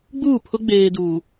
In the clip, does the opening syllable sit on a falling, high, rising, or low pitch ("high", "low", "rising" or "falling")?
falling